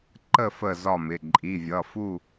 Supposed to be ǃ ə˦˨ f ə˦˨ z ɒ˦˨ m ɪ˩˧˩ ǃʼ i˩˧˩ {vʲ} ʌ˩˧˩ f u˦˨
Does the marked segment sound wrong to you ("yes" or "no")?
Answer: no